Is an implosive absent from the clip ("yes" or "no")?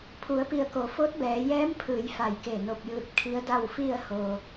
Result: yes